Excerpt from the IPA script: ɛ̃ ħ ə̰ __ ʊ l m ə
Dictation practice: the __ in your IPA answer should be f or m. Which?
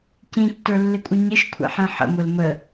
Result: m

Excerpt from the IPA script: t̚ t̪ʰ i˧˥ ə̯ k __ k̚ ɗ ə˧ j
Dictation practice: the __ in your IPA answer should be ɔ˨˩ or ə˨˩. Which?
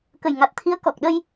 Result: ɔ˨˩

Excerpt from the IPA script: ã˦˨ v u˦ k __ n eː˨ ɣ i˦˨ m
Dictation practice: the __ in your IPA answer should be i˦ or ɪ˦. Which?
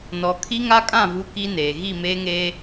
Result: i˦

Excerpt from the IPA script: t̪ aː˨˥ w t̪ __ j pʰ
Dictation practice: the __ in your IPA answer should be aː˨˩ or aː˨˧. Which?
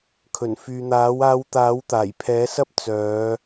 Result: aː˨˩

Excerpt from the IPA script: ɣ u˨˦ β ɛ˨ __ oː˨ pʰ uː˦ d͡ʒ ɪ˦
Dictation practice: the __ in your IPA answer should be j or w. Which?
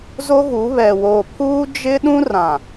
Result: w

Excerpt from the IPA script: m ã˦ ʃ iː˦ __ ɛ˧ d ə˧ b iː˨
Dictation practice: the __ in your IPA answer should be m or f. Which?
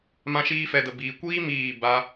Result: f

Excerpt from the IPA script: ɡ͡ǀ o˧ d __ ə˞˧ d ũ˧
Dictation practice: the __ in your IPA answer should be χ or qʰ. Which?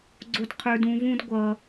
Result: qʰ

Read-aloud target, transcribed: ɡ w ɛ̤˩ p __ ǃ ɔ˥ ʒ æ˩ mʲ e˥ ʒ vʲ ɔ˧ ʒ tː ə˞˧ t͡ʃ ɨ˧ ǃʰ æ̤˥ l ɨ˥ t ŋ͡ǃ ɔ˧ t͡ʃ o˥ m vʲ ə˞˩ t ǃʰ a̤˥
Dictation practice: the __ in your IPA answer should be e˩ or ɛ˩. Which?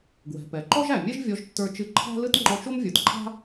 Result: ɛ˩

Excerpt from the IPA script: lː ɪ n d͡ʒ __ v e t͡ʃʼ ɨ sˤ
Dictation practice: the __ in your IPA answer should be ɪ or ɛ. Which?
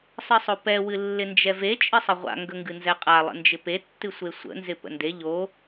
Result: ɛ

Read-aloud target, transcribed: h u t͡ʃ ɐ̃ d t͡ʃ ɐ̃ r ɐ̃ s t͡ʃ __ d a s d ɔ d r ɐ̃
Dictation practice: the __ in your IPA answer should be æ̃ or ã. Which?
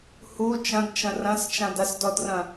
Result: ã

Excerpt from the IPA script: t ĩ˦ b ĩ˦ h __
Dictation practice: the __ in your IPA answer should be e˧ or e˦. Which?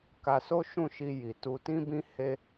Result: e˦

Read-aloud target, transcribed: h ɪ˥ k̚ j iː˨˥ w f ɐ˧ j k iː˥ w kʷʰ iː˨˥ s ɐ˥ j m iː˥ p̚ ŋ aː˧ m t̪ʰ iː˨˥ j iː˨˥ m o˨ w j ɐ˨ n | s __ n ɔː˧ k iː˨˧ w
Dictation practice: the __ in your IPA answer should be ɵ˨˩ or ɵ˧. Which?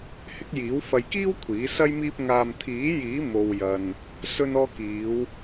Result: ɵ˧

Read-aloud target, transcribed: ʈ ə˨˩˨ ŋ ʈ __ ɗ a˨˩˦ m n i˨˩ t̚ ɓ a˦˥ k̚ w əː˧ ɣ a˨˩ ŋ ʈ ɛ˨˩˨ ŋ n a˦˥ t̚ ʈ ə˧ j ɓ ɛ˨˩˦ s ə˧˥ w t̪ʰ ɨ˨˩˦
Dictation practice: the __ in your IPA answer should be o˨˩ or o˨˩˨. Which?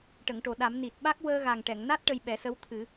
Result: o˨˩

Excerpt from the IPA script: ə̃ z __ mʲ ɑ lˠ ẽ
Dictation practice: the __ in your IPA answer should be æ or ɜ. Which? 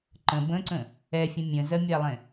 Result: ɜ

